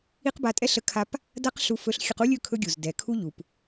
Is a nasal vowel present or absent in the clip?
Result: absent